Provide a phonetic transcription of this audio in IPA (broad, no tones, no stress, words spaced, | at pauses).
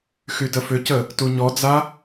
xydəfʏcə | tuɲɔd͡za